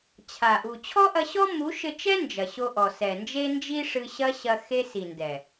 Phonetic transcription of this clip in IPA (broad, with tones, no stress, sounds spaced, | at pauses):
t͡ɕʰ a˨ ʔ u˨ t͡ɕʰ ɔ˦ ʔ ɐ˧ ɕ ɔ˦ m u˨˦ ʃ ɘ˧ t͡ʃ ɛ˦ n d͡ʒ ɐ˨ ɕ o˧ ʔ ɔ˨ s ɛ˨ n d͡ʒ e˦ n d͡ʒ i˦ ʂ ɨ˧ ɕ ɐ˦ ɕ ɐ˧ x e˦ s i˨ n d ɛ˨